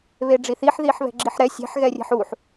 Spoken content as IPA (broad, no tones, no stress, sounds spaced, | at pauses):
β e ɖ͡ʐ i θ i ħ ð i ħ β ɛ̤ ɡ͡ǁ i ħ ɾ ɛ sʲ ɛ̤ ħ ɣ ɛ rʲ ɛ̤ ħ u ħ